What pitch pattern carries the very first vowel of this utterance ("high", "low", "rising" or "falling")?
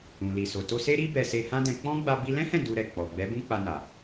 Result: low